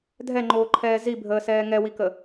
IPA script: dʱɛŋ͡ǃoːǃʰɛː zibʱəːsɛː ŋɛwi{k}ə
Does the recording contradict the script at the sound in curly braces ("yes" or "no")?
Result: no